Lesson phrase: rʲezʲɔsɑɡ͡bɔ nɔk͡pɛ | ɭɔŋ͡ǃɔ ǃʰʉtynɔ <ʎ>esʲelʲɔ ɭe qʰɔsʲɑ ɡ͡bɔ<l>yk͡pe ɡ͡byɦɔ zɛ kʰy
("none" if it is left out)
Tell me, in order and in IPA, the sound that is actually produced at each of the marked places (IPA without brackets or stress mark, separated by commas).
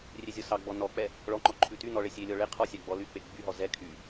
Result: ɭ, l